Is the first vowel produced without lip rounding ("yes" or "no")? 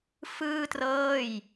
yes